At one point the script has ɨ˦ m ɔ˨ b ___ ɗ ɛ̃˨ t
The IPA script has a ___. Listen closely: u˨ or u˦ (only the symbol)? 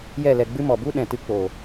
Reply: u˦